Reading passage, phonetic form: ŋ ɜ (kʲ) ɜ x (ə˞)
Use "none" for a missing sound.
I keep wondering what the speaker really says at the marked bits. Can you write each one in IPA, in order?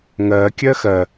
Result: kʲ, ɜ

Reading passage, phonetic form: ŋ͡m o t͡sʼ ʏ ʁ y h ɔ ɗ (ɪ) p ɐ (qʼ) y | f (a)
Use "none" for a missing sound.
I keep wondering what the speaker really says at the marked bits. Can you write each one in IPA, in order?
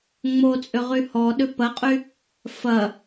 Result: ʏ, qʼ, ɐ

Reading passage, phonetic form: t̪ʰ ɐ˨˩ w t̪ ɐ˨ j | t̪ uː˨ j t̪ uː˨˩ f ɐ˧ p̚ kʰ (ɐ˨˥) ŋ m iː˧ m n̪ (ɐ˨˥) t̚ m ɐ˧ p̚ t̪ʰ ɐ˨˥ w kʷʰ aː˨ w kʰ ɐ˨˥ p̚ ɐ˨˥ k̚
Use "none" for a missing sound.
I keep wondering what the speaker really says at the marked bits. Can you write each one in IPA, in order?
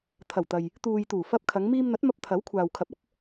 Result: ɐ˨˧, ɐ˨˥

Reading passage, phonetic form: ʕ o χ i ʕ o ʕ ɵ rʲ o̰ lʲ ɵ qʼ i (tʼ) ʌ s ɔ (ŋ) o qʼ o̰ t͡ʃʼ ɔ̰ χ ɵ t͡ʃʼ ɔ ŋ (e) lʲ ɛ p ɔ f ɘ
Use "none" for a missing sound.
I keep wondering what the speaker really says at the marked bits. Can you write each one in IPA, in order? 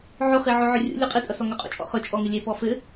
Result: tʼ, ŋ, ɘ

